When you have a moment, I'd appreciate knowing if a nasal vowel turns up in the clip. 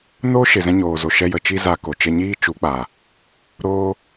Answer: yes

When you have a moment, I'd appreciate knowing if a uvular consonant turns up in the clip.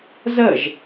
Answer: no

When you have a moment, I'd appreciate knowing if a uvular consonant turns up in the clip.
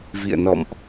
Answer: no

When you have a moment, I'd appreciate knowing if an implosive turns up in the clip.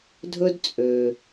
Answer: no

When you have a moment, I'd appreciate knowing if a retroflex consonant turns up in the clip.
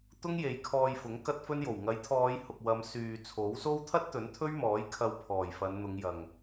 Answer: no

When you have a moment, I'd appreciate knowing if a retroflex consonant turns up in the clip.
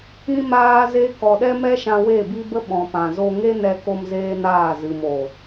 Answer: no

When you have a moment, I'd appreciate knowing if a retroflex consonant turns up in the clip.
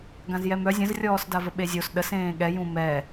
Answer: no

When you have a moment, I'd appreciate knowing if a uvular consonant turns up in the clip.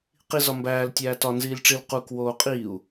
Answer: yes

